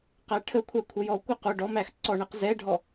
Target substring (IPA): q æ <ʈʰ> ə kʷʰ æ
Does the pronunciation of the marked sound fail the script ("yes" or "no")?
no